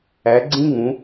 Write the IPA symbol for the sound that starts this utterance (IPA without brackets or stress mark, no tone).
æ